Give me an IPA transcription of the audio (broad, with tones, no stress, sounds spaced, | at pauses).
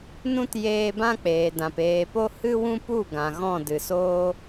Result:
n ũ˦ t j eː˧ b ã˦ k͡p eː˨ d ã˨ p eː˨ p o˦ h ɨ˦ w ũ˦ p u˦˨ ɡ ã˨ ɣ ɔ̃˦˨ d ɨ˨ s oː˦